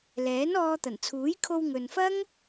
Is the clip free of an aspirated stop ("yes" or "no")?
no